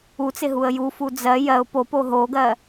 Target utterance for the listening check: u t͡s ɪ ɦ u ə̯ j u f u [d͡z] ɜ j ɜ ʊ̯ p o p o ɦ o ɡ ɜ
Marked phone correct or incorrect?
correct